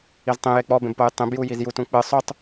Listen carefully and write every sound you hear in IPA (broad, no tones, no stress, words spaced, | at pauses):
iztˤĩ jek͡pɔ bẽbpojtˤĩb jujizjut ũk͡pɨ sˤotˤ